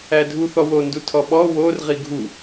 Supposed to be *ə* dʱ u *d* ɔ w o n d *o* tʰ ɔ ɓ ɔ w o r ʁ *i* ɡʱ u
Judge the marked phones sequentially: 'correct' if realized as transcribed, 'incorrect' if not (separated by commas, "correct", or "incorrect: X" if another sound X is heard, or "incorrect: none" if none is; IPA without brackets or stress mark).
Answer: incorrect: æ, incorrect: θ, incorrect: u, correct